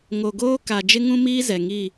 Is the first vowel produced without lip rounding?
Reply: no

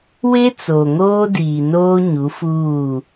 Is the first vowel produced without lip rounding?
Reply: yes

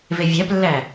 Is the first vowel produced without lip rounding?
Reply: yes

